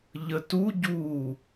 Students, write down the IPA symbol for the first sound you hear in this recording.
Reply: ʎ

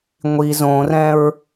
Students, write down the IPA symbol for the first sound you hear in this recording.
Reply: ŋʷ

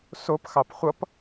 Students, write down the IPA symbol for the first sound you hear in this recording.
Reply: s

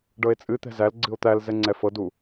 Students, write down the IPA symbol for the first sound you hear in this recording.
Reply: ɖ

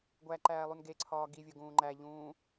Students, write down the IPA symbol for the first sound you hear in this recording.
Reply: ɡʷ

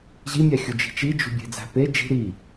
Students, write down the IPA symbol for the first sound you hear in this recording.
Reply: ʑ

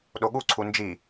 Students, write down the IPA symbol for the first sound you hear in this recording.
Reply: ɗ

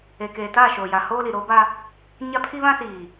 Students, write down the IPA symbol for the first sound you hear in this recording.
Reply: e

